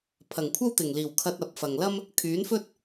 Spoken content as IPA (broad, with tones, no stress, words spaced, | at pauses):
pʰɐ˨˩ŋkʷʰɐ˥wt̪ɪ˨˩ŋ liː˨˩wkʰɐ˧t̚ ɐ˨˥p̚fɐ˨ŋ lɐ˥m | kʰyː˨˥nfɵ˥t̚